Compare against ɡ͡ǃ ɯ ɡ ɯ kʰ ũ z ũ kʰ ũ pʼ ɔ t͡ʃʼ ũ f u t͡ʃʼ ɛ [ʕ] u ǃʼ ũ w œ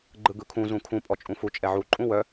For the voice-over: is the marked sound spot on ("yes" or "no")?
yes